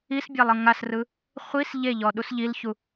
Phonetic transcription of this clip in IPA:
isbʲalˠ ɤŋasrɯ | χʷis ʎeʎɔ ɗusʎilçu

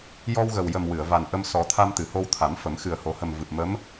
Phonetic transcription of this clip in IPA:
jɔ˧wɣə˨˩wjə˨˩m wɨ˨˩˨ə̯va˨˩nʔə˧m sɔ˨˩˦t̪ʰa˧m t̪ɨ˨˩˨ho˧w t̪ʰa˨˩˦mfə˨˩˦m xɨ˨˩ə̯ho˨˩˦hə˨˩m vɨ˨˩p̚mə˧˥m

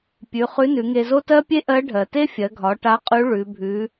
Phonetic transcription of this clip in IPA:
pʲʉ˩˧ χʉ˧˥nʉ˩˧ŋe˧zo˥ tɜ˥pʲe˥ʔɜ˧˥ ɖʱɜ˩te˥fʲɜ˩˧ɡʱɒ˩˧ ʈa˧˥qʼʉ˧˥ ɭʉ˩˧ bʱʉ˩˧

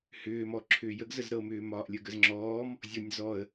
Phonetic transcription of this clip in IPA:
hʏːmɔ ǁʰʏːjəɡ zəzɾɤmʏːmɒːʔ lʲəɡəzŋ͡ǁɔːm | zʲɔnʲzɔə̯

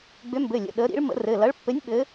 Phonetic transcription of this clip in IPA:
ɡ͡bʏ˨˦mbɘ˩˧˩lʲə̰˩˧˩ ɗə˨˦ ɾḭ˨˦ɭ mə̰˨˦rɘ˩˧˩ lɐ˨˦ɭpːɘ˨˦nʲ ɓɘ˨˦

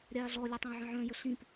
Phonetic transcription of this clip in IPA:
ɾʲaːɮɔ lʲətˤœ̃ə̯ʕə̃ʕœ̃ jəɬĩp

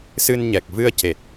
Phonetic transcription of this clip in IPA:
sɨ˧nɲɛ˨˩k̚ vɨ˧ə̯ce˨˩t̚

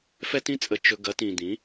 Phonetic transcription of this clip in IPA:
fɛ˦tĩ˦ t͡sʼə˧ t͡ʃɵ˧ ɡɐ˨˦tĩ˨ d̪ĩ˨˦

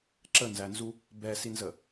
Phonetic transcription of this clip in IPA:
ǁənzænzu | bɛsinzə

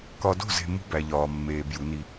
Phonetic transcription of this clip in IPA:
kɒ˨do̤˦˨ze̤˨ mṳ˦ bæ˨ʎɒː˨mːeː˨ bju˨˦ni˦

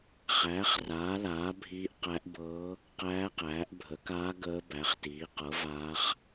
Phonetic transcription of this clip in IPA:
χæː˩˥χraː˩˥laː˩˥ bʱiː˧˥ʔqæ˧˥ʔbɤː˧˥ | qæː˧˥qæː˩˥ʔ bʱə˩˥kaː˧˥ ɡəː˧˥bæ˩˥χtiː˩˥ qɤ˩˥ vaː˧˥χ

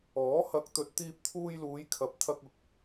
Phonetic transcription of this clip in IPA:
ɔː˨˥ hɐ˨˥k̚t̪ɵ˨t̚ t̪iː˧p̚t̪ʰuː˧jluː˨˧jkʰɐ˨p̚ t̪ʰɐ˧k̚ʊ˨k̚

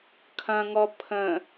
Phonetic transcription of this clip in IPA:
kʰɐ̃ŋɔ pʰə̃

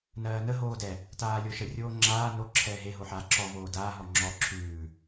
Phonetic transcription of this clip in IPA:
nɜːnə ɦoːdɛ | taːlʲoʃə rʲoːŋ͡ǁaː no ǁʰɛːɦe ɦoħaːǁɔ voːdaː ɦɔŋ͡ǁɔ ǁʰʉː

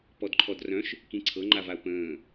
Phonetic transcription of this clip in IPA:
pɔdǃʰɔdrœ̃ʃ | kĩǀʰɤŋ͡ǃav aʊ̯pə̃ː

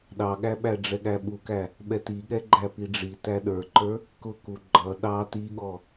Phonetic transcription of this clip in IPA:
ɗɑɠæɓæ ɖ͡ʐɛɠæɓukæ | ɓɛtiɠɛɡ͡ǃæ piɖ͡ʐi tæɗə˞ǃə˞ | kʊku ɡ͡ǃʌ ɗɑ tiɠɔ

